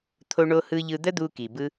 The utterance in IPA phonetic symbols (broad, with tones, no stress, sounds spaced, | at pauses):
t̪ʰ o˥ ɳ o˥ h ɯ˥ ʎ ɯ˧ d̪ ə˥ d̪ u˥ k i˩ b ɯ˥